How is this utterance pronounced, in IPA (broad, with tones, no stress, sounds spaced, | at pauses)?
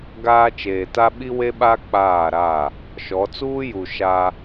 ɡ aː˦ t͡ʃ eː˨ t a˦ ɓ i˦ w e˦ ɓ a˦ k͡p aː˦˨ ɾ a˦˨ | ʃ ɔ˨˦ t͡s uː˦ j u˨ ʃ a˦